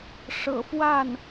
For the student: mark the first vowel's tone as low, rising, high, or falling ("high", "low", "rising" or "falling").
low